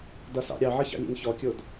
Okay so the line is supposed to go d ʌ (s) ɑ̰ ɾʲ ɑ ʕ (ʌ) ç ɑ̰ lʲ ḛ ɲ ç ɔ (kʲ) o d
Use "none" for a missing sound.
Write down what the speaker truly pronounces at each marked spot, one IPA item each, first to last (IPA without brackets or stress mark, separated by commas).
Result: s, ʌ, kʲ